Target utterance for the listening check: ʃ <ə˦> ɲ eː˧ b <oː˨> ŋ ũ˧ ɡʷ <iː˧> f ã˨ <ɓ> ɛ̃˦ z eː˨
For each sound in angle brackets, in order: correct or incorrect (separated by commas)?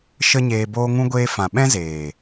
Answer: correct, incorrect, incorrect, correct